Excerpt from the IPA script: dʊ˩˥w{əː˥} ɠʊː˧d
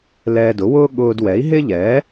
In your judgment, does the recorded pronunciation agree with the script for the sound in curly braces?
no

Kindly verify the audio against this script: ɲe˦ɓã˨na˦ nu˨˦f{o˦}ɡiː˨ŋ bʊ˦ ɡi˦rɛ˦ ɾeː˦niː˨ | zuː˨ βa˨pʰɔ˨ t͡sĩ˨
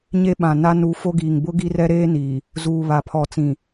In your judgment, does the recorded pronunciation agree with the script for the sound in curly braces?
yes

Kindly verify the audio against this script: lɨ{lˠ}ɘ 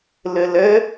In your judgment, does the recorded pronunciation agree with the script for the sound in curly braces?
no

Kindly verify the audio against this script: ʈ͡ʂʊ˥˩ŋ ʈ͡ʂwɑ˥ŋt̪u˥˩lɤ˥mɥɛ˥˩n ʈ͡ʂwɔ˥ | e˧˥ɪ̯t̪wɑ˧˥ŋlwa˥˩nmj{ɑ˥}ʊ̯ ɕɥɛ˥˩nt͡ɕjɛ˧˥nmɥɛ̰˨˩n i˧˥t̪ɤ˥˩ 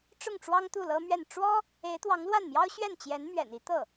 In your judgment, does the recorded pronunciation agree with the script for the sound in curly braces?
yes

